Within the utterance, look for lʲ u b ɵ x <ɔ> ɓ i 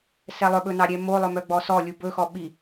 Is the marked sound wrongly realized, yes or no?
no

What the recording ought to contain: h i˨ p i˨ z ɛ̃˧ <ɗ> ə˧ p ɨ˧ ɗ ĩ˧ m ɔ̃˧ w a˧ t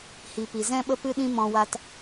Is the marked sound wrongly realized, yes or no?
yes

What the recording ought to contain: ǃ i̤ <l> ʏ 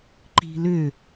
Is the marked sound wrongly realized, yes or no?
no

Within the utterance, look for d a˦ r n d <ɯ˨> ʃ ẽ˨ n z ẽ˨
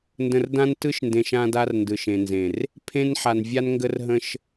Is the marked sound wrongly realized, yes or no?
no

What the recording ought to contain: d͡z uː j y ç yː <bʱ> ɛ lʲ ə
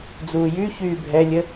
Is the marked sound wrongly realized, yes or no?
no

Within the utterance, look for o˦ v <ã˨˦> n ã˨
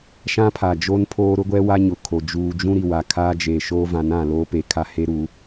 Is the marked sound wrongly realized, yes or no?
no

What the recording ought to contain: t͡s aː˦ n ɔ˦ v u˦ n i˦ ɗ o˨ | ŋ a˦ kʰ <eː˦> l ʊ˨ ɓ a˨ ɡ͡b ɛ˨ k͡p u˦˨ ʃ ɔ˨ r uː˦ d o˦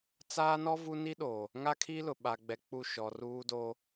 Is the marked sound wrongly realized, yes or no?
yes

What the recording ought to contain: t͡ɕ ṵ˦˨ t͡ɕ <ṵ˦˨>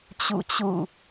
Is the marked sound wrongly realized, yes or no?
no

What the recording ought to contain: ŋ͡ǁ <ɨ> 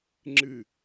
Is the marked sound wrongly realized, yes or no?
no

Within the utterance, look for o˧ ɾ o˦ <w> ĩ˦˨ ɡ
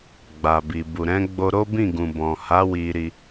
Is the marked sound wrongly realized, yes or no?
yes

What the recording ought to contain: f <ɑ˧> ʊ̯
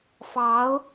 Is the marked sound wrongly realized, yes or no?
yes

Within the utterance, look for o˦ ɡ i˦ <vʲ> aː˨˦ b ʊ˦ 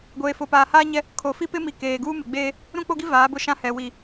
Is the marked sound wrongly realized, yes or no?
yes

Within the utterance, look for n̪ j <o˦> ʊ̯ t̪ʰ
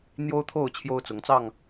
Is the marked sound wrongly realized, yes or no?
no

